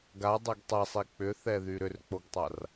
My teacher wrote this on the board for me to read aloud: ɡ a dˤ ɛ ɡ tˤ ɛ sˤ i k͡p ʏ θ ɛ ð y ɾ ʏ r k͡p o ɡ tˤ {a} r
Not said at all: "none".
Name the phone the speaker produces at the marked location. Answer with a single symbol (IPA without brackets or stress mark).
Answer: a